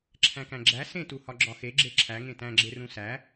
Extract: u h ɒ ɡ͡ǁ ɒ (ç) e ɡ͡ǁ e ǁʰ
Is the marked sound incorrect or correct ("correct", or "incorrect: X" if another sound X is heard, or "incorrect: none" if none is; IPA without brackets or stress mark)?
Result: incorrect: x